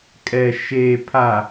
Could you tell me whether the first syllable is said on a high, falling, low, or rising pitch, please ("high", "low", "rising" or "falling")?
low